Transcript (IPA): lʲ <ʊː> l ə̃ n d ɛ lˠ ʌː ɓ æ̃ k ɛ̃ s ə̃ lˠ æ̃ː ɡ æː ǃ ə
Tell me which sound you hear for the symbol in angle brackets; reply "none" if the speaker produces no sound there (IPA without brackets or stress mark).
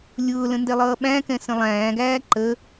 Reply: ʊː